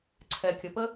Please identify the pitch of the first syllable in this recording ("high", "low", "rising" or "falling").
low